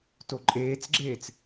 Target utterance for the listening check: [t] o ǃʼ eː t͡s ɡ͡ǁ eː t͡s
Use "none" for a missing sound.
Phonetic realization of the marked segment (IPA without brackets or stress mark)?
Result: t